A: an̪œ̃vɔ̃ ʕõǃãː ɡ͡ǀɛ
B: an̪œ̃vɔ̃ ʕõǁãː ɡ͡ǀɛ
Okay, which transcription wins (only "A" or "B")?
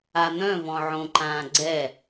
A